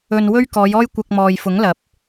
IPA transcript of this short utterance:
ɵ˧ n w ɵ˥ ɥ k ɔː˨˧ j ɔː˥ j kʷ ɐ˧ k̚ m ɔː˨ j f ʊ˨˥ ŋ l ɐ˨˥ p̚

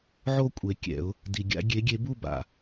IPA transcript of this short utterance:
ʕ o˥˧ kʷʼ e˨ kʲ ɛ̰˨˩˦ ʊ̯ | d i˨ ɡʲ a̰˦˥ ɡʲ e˨˦ ɡʲ e˨˦ b u˥˧ b a̰˨

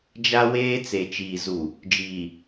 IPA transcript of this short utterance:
d͡ʒ a˦ w eː˦ t͡s e˨ t͡ʃ iː˨ z u˨ | d͡ʒ iː˨

